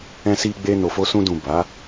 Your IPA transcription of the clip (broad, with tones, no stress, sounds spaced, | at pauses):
ɛ̃˧ s i˧ ɡ͡b e˧ n o˨ f o˧ s ũ˧ d ũ˨ b a˨˦